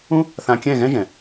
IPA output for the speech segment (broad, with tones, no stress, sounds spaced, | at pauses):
ũ˦ | θ ã˧ kʲ ɛ̃˦˨ ɣ ɛ̃˦ ʒ ɛ̃˨